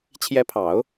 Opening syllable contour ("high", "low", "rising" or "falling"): rising